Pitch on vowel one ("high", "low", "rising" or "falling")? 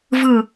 falling